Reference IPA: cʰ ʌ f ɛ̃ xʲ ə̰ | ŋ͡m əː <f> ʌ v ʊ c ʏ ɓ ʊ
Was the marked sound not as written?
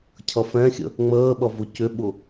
yes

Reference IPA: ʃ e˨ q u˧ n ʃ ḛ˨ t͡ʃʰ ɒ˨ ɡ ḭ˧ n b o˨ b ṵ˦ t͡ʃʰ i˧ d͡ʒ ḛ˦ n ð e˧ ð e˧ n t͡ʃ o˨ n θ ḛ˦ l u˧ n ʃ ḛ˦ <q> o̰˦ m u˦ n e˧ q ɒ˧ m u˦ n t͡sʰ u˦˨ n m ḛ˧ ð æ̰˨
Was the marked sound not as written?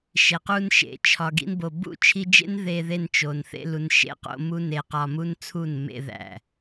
no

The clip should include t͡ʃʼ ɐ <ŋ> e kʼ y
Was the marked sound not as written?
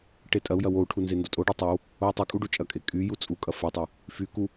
yes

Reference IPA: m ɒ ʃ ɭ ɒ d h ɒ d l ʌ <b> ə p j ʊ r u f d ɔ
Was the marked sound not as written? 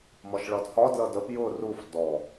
yes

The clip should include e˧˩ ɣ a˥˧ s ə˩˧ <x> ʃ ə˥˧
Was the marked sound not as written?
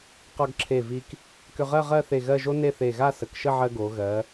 yes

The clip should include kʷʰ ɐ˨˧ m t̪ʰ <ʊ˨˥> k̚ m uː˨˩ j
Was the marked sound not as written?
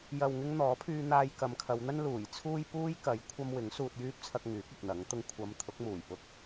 no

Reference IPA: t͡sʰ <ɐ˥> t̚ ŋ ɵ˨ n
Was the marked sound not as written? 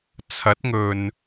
yes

